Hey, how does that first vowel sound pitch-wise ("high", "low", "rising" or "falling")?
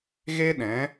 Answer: high